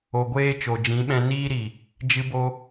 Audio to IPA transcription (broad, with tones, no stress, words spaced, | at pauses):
o˨ɡʷeː˧ t͡ʃo˨d͡ʒĩ˨˦ɓɛ̃˧ niː˦ɾi˨ | d͡ʒɨ˧bo˧